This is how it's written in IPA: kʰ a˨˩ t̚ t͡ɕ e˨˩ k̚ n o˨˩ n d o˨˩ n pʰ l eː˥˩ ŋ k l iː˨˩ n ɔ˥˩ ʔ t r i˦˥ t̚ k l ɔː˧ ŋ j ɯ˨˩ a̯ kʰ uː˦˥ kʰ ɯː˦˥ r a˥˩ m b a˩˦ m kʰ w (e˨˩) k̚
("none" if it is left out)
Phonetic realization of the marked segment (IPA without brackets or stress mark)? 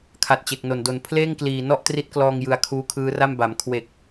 e˨˩